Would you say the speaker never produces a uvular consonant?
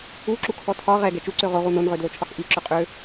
no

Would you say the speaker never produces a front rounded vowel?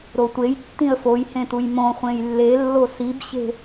yes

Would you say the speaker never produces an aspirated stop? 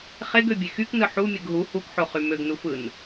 yes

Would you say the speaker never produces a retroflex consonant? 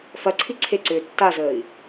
yes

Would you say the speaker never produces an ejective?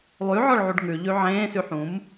yes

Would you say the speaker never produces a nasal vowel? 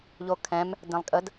no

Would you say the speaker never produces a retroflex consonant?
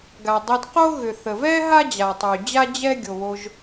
yes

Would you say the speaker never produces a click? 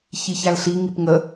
yes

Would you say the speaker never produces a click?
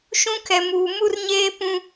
yes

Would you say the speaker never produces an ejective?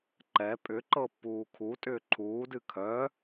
no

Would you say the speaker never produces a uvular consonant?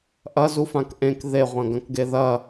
no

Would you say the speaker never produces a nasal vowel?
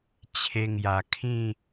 no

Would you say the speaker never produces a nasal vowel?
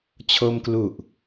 yes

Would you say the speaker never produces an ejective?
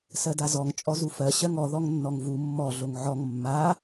no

